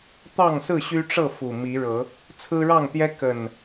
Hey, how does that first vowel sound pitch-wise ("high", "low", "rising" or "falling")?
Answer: falling